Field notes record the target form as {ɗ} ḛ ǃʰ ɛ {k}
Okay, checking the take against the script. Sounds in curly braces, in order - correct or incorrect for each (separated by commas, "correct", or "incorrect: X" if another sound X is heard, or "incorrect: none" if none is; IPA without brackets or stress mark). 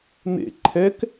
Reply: incorrect: n̪, correct